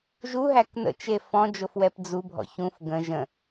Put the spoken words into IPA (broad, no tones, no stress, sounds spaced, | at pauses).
ʒ u ɦ æ k n ə̰ t͡ʃ e f ɔ̃ d͡ʒ o f w ɛ p d͡z u bʱ ɔ̰ ç ũ f ɡ ə̃ ʒ ə̃